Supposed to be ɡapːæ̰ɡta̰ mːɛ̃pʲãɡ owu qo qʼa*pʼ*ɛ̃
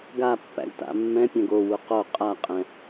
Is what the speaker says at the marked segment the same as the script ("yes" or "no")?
no